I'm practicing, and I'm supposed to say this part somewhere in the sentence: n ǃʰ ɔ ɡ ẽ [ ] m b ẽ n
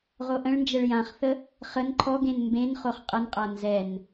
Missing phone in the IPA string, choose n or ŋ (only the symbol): n